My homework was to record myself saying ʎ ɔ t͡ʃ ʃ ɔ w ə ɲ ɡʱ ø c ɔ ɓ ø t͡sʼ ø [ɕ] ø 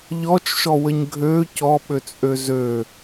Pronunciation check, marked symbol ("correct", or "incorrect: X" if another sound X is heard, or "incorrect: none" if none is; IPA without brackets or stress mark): incorrect: z